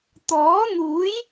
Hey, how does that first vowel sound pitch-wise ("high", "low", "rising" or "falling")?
rising